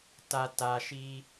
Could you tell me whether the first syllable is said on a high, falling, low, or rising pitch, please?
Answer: low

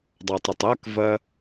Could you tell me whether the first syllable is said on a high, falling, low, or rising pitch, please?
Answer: low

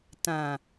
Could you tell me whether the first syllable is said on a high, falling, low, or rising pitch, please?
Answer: low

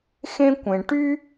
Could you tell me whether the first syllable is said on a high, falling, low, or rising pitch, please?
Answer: high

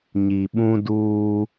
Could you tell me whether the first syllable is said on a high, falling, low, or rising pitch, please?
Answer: low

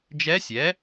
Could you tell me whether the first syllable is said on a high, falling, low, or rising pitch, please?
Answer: rising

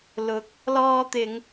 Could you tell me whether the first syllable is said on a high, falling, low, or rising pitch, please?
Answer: rising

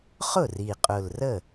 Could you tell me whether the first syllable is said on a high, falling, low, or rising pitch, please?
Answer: falling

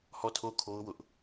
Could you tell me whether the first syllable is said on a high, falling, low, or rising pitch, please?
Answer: falling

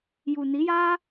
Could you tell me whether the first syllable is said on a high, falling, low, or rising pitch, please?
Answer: low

